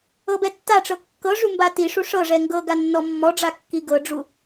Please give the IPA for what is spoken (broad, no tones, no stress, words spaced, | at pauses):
ɤbɛtːaʈ͡ʂɤ kːɤʐu mbatiʂu ʂɤʐɛ ŋɡɤ ɡanːɔmːɔɖ͡ʐa kːiɡɤɖ͡ʐu